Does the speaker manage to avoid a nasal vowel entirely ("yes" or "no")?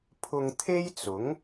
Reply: yes